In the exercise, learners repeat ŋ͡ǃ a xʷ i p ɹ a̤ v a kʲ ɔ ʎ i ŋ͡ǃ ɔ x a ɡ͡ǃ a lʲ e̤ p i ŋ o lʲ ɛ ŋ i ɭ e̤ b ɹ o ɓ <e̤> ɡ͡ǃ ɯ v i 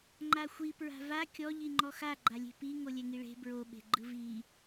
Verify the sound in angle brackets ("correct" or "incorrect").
correct